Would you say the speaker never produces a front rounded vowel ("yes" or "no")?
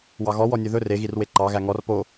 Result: yes